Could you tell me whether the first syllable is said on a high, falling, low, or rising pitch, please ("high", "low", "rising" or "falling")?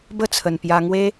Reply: falling